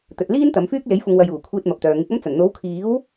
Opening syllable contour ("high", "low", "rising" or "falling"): low